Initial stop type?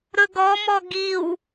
plain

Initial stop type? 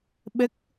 implosive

